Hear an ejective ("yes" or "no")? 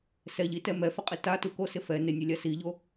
yes